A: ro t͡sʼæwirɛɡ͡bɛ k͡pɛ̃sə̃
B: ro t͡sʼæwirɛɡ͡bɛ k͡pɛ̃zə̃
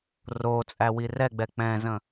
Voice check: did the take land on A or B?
B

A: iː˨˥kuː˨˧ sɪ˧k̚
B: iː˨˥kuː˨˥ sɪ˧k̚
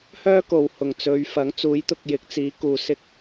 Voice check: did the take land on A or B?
A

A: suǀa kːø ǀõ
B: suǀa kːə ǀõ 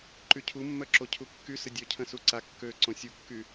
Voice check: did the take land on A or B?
A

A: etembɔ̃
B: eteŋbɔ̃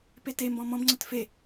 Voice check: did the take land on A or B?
A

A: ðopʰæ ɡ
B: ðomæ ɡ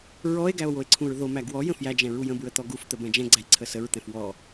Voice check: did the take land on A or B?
B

